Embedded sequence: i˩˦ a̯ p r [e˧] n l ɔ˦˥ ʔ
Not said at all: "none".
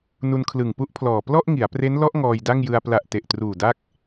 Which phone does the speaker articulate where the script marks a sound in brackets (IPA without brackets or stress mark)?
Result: e˦˥